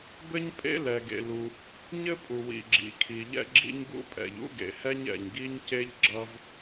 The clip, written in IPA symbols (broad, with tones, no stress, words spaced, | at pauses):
bɘ˥ɲpʼḛ˥ lɛ˩ɡḛ˩lu˩ | ɲɘ˥pʼu˩wḭ˩ ɡ͡ǁḭ˩kʰi˩ʎɛ̰˥ɡ͡ǁḭ˥ɲ ɡṵ˥pʼɛ̰˩ʎ ṵ˥ɡḛ˩hɛ˥ɲ ɛ̰˩ɲɡi˥ɲce˥ʎ ɡ͡ǁʌ˥v